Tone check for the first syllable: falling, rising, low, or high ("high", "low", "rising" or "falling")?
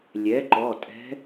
rising